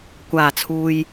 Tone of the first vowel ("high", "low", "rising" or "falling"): low